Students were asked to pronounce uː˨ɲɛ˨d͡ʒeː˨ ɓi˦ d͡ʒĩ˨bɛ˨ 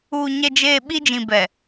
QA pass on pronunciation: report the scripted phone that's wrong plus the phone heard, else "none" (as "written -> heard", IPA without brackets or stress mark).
none